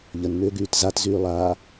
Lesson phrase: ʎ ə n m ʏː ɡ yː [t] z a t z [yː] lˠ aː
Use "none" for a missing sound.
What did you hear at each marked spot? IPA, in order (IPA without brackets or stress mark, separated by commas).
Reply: t, yː